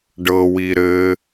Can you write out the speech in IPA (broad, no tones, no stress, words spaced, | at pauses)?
ɖɤwi ɾɘ